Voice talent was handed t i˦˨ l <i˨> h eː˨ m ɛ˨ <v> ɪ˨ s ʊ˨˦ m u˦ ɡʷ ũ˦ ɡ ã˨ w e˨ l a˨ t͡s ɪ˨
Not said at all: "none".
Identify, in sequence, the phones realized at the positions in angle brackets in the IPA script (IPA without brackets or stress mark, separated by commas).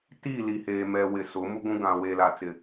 i˨, w